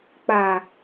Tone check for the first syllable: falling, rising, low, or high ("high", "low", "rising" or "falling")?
low